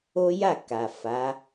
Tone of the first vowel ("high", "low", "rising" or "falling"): high